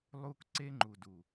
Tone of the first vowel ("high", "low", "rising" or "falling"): high